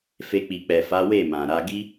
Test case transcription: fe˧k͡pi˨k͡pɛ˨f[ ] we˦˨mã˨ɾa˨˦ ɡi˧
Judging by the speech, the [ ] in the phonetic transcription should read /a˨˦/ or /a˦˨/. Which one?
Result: a˨˦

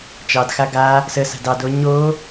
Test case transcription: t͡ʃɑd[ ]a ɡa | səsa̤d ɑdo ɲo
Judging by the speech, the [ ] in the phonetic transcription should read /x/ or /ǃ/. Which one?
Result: x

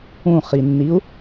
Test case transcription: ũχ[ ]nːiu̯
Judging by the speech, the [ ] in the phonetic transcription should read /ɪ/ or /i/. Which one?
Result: i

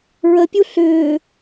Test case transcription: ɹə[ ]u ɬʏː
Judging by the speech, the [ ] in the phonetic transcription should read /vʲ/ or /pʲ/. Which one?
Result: pʲ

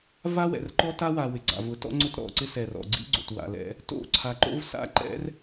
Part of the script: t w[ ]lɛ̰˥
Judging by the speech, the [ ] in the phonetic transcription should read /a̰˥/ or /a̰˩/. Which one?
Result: a̰˩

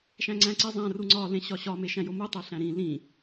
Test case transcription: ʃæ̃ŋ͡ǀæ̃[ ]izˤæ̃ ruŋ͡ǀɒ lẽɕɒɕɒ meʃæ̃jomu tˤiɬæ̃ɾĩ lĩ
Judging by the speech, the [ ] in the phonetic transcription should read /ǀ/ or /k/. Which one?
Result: ǀ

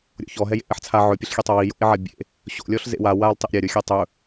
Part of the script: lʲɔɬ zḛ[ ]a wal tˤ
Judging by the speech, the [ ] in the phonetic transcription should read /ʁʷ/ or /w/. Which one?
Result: w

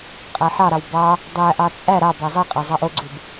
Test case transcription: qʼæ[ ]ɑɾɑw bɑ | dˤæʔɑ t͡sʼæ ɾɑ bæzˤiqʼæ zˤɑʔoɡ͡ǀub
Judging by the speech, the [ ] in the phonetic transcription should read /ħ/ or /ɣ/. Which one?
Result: ħ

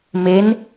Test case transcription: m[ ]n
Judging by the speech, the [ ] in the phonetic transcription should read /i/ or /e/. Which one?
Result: e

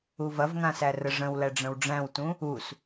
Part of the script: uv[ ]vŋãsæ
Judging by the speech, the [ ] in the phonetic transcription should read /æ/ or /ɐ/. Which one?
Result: ɐ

